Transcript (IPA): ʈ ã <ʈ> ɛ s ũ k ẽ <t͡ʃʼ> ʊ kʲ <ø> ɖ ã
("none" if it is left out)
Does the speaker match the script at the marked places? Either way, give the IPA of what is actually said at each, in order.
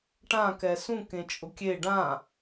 k, t͡ʃʼ, e

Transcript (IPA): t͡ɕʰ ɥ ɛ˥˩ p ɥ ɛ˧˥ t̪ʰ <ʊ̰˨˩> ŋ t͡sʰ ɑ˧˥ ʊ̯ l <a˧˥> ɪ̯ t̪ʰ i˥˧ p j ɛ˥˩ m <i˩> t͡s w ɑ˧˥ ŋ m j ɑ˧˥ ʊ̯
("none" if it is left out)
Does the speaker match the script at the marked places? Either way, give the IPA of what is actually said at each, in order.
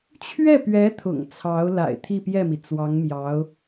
ʊ̰˨˩, a̰˨˩, i˩

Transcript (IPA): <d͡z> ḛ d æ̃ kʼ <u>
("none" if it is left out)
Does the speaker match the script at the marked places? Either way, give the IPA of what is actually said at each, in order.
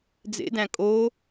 d͡z, o

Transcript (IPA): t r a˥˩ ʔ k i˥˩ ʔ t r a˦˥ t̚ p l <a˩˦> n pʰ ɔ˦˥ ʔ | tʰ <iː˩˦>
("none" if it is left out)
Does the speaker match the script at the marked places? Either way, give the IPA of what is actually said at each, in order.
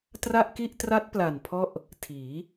a˨˩, iː˩˦

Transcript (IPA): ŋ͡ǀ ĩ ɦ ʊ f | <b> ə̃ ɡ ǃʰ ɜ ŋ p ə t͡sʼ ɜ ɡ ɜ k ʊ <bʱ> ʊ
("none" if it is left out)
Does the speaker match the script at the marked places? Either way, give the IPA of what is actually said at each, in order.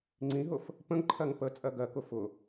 p, f

